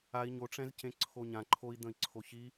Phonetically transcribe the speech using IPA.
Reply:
ai̯ ɲoʈ͡ʂɛ̃zcẽ ǀʰoɲã ǃʰoi̯d̪ə̃i̯ǀʰo çi

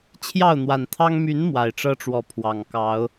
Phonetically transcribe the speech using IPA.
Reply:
t͡ɕʰjɑ˥˨ʊ̯n̪wa˨˩nt̪ʰɑ˦ŋ my˨˦n mwa˨˩ɪ̯ʈ͡ʂɤ˦ʈ͡ʂwɔ˨˦pʰwɑ˨˩ŋ kɑ˨˦ʊ̯

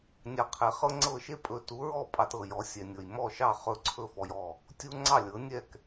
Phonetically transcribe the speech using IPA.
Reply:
nʲɑ˧qʰe˩˥χɤ˥ ŋ͡ǀɤ˥˩ʃe˥pʼɵ˧ tu˩˥ɹɔ˥˩ pʼɑ˧tɤ˩jɔ˩˥ sʲɛ˩nʲɤ˩jmɔ˥˩ʃɑ˥˩ χɵ˥˩ǀʰɵ˥ fɔ˧jɔ˥˩ | tʲu˥ ŋ͡ǀɑ˥˩lʲɤ˩˥nʲɛ˥˩k

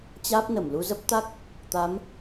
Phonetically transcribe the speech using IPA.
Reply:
t͡ɕaː˦˥p̚nə˧˩m lu˧zə˦˥p̚t̪a˦˥k̚ | t̪a˨˦m

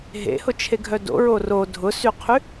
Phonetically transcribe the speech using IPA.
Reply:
ɦḛhʊt͡ʃʰeɡʱœ do̰ɹo ro dʱʊsyqʰy

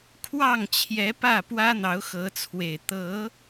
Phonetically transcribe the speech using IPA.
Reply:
kʰwɑ˥˨ŋt͡ɕʰjɛ˨˦pä˥˨ pwä˦n̪ɑ˨˦ʊ̯xɤ˨˦t͡sʰwe˨˩ɪ̯ t̪ɤ˨˦

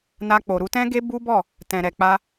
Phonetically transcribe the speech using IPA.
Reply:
na˧k͡po˨ ɾu˨˦tɛ̃˦ ɡe˦bu˦bɔ˦˨ | tɛ̃˨ɾɛ˨ k͡pa˧

